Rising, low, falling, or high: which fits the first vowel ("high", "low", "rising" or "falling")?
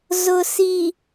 low